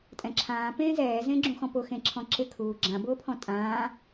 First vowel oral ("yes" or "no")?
no